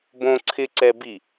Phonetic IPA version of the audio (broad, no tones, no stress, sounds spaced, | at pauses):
b õ ǀʰ ɪ ǀ ɛ b i